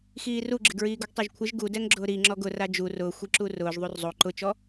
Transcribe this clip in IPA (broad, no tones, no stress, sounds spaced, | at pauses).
x iː r u ɡ͡ǁ ɪ ɡ ɹ iː ɡ o ɡ tˤ ɛ ʒ kʷʰ ɪ ʒ ɡ u d ɛ ŋ ɡ͡ǁ ʊː ɾ i ŋ͡ǁ ɔ ɡ ʊ r a d͡ʒ u r ʊː xʷ i ǁ u r ʊː ʒ ðˤ u r zˤ o ǃ ʊ t͡ʃ ɔ